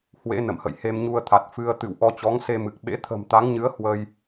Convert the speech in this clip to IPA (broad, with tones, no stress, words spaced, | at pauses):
hwḛ˧˥ nə̰˧˨mhə̰˧˨j he˧mɲu˧ə̯t̪ʰa˨˩t̚ fɨ˧ə̯ t̪ɨ̰˧˨w ʔɔ˧t͡ɕɔ˨˦ŋse˧mɨ˨˩k̚ ɓḛ˧˥t̪ʰə̤˨˩mt̪a˨˦ŋɲɨ˨˦ə̯ hwə˧j